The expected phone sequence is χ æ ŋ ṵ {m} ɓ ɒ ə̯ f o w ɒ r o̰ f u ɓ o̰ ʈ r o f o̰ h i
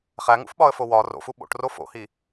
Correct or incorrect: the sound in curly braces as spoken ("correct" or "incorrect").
incorrect